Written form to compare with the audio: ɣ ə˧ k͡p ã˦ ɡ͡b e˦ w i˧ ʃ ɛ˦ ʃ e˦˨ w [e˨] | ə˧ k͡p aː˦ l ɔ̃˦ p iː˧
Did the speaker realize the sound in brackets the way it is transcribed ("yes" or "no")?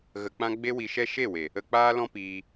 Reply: yes